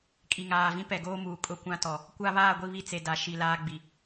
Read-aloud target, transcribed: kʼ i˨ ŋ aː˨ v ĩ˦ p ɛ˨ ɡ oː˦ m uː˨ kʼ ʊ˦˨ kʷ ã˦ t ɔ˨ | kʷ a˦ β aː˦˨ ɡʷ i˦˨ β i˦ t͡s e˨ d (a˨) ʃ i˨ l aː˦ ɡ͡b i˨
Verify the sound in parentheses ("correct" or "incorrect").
incorrect